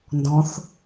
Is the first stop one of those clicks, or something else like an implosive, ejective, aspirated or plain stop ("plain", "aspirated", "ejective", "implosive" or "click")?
plain